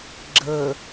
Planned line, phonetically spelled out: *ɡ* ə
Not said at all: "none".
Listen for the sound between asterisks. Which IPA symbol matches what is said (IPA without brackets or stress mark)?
ɡ͡ǁ